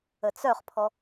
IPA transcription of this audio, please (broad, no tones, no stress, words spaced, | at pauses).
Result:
ət͡sœχpʰɔ